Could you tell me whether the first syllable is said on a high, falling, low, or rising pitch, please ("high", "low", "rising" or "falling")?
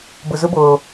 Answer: low